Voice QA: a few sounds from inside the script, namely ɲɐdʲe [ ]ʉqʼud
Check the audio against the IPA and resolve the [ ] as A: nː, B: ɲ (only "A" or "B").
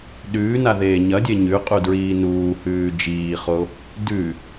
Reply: B